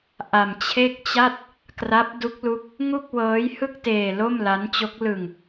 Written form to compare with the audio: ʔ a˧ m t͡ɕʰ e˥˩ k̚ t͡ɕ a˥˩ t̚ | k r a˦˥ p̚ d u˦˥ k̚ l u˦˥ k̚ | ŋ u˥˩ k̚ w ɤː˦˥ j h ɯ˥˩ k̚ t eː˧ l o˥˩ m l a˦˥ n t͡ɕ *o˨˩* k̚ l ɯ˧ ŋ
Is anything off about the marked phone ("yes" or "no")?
yes